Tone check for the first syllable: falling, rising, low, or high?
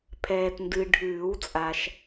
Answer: low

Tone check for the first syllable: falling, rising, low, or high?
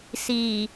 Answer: low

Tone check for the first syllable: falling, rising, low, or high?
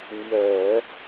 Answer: low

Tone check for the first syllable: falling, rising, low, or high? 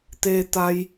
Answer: low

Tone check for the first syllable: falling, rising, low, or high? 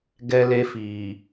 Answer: high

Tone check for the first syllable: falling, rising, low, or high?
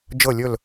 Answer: falling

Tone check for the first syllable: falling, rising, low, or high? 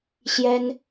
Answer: high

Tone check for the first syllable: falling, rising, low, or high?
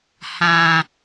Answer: low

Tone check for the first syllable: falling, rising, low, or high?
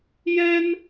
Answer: high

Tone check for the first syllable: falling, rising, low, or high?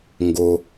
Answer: low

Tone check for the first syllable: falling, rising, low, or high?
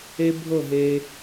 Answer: high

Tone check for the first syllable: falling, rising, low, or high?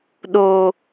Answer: low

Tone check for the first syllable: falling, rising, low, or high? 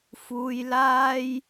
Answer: high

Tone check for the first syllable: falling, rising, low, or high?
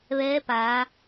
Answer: rising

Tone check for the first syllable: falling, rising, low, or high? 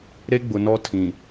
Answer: high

